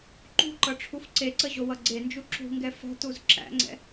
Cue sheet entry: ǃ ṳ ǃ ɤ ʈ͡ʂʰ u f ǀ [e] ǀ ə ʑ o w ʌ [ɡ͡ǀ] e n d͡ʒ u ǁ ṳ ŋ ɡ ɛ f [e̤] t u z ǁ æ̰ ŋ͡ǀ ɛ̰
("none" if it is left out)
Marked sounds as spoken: e, ɡ͡ǀ, ɛ̤

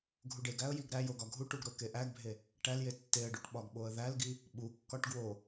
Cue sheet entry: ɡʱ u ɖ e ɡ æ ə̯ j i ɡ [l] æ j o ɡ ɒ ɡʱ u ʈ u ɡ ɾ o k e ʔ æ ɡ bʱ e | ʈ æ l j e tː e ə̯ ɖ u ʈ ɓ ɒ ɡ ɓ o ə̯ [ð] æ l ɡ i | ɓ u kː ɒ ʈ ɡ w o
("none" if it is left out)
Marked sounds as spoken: ɾ, ð

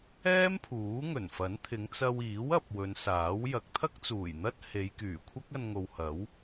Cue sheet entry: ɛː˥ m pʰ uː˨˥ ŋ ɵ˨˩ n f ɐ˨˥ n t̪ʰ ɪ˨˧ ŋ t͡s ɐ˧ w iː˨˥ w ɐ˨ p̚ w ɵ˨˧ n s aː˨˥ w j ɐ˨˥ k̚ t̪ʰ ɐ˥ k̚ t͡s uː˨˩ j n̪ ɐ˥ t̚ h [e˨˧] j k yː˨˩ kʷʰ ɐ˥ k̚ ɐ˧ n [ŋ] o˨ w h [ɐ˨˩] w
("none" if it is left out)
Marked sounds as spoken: e˨˧, ŋ, ɐ˨˥

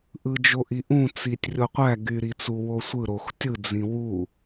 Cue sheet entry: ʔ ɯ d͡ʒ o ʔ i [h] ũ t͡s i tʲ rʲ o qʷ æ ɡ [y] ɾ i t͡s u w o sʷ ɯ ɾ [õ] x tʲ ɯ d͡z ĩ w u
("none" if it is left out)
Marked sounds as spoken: ʔ, y, o

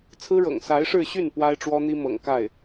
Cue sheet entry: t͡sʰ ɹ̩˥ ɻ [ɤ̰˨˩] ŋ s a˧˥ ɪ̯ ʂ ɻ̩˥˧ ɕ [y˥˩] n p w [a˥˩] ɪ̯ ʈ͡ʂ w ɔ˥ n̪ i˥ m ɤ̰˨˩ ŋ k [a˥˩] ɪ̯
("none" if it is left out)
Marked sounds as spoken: ɤ̰˨˩, y˥˩, a˥, a˥˩

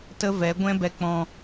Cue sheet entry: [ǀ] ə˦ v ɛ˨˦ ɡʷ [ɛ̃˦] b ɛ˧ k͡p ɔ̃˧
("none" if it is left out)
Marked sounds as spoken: t, ɛ̃˦

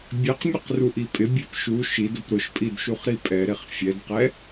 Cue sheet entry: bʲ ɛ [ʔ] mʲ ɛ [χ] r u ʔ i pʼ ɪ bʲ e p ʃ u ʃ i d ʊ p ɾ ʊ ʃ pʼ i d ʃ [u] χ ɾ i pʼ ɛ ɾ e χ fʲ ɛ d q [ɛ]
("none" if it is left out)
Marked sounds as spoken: q, q, u, ɛ

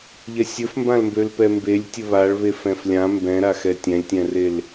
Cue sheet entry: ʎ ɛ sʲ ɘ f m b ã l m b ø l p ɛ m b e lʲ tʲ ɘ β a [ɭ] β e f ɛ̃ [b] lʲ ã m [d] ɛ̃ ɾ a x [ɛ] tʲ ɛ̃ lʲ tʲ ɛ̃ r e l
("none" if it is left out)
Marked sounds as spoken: ɭ, f, b, ɛ

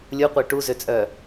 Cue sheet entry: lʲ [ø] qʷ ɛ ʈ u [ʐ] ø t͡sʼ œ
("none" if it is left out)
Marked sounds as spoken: u, z

